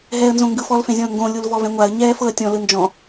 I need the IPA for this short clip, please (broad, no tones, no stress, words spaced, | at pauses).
ɦɛːə̯nzõŋɡɯf ɔlfẽzʲɔ̃ʊ̯ŋɡõ lʲulvɔvɛ̃ŋʷaə̯ ɲɛːfɤə̯tʲɔ̃ lɯnd͡ʒɔ̃